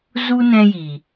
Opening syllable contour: high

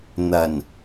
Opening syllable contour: low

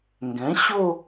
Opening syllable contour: rising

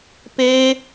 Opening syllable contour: high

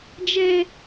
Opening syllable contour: high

